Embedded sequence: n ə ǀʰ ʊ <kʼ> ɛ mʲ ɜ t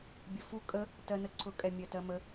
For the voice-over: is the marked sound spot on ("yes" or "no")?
yes